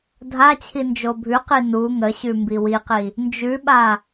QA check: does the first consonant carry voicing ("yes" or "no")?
yes